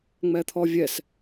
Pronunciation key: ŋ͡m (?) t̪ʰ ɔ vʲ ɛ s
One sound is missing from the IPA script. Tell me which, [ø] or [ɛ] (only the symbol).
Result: ɛ